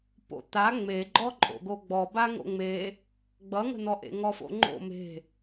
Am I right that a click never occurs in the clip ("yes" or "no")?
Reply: no